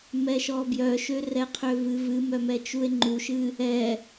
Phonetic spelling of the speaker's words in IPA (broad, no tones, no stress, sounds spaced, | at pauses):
m ɛ ʃ ɔ b j œ ʃ ø r ɛ qʰ ø v ɨ v ɨ m œ m ɛ t͡ʃ u e̯ ŋ͡ǃ u ʃ ɨ | ɛ